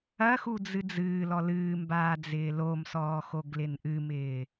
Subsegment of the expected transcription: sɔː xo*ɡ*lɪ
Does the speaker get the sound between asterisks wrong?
no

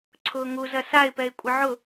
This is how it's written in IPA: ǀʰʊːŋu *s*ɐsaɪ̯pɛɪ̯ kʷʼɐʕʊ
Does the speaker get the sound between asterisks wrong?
yes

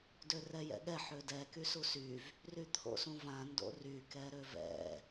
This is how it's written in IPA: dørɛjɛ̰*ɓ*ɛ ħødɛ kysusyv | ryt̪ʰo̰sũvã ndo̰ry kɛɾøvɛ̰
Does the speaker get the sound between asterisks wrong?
yes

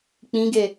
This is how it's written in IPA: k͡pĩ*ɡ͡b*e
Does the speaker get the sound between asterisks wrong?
yes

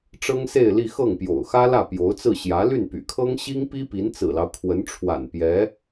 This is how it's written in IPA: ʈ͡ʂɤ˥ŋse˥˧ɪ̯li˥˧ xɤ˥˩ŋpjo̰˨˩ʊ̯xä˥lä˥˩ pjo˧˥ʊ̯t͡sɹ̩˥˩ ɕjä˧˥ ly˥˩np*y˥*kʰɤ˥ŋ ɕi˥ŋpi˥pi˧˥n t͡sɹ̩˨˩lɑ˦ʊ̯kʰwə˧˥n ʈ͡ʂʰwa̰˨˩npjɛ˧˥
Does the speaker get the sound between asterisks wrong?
yes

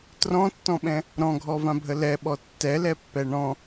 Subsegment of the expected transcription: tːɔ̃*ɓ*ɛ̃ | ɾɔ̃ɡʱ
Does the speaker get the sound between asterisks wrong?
no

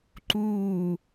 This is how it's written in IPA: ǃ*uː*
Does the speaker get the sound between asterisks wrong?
no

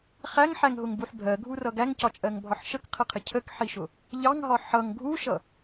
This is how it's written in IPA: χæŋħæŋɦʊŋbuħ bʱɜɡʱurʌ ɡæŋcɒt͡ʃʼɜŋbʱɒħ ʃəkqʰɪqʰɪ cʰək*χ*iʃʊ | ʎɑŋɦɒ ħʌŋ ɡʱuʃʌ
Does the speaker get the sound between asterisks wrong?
yes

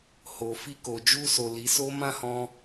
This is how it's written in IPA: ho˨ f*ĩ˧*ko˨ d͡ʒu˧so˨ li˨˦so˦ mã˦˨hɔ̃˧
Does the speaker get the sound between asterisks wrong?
yes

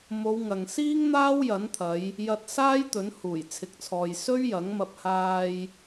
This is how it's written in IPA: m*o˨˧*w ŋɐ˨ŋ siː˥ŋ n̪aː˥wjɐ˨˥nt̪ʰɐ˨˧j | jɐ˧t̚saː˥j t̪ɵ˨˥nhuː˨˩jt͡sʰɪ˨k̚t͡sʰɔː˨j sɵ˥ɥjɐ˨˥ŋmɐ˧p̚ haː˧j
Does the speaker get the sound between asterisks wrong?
no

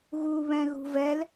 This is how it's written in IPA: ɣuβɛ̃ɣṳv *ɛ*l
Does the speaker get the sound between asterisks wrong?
no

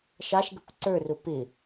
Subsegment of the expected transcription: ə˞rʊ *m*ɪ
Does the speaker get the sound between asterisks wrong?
yes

